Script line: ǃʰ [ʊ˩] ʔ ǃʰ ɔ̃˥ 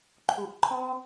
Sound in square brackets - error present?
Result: yes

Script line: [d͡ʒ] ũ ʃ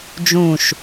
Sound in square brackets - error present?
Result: no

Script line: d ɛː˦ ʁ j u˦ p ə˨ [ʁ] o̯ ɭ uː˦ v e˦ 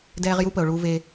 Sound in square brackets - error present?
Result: yes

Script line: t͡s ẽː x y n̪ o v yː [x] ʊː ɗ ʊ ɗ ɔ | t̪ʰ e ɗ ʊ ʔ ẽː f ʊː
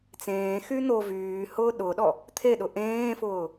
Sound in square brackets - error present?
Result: yes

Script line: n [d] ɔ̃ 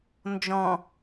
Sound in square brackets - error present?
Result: yes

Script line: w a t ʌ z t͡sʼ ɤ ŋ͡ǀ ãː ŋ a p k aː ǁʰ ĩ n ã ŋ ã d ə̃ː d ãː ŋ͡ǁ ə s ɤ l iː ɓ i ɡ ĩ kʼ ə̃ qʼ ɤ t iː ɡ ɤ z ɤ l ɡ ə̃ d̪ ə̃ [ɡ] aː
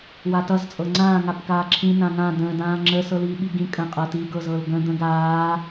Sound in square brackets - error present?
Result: no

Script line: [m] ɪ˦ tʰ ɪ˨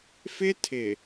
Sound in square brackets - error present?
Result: yes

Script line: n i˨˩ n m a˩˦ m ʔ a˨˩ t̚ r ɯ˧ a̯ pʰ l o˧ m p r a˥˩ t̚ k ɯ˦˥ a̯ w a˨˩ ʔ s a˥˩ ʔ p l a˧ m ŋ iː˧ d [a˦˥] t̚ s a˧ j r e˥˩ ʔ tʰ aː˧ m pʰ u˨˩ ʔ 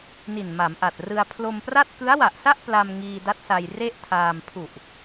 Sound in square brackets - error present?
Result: no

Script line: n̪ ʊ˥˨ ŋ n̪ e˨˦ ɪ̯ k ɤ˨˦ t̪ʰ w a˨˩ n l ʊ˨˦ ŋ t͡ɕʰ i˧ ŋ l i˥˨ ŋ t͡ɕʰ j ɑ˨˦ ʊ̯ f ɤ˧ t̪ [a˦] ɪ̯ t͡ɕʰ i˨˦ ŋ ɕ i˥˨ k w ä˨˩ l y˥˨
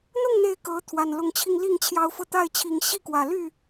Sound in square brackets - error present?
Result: yes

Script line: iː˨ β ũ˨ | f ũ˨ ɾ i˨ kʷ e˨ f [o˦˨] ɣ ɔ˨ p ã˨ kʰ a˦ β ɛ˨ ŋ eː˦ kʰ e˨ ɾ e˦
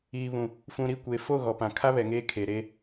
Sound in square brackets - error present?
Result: no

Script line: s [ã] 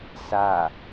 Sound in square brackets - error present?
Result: yes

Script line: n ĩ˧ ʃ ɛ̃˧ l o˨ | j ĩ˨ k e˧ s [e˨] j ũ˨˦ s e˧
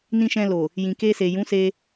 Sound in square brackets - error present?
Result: no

